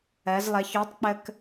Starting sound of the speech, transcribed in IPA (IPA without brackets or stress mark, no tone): ɜ